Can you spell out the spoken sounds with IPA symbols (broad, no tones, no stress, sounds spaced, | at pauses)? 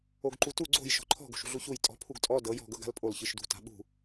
o ɡ ǃ u t u ɡ͡ǀ o̤ j ʃ ɔ̤ ǃʰ ɔ̤ ɡ o̤ ʃ ṳ ɮ u ç u j tʼ ɔ̤ pʰ u ɡ tʼ ɔ d ɤ j ɔ̤ ɡ ɤ ɡ a̤ l pʼ o l ç ɯ ʃ d ṳ t a̤ ɓ ṳ